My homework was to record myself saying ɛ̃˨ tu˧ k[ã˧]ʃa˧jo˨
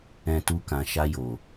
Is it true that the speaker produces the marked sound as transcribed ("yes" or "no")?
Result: no